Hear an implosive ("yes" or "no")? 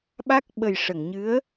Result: yes